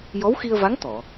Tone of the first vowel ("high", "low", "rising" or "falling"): rising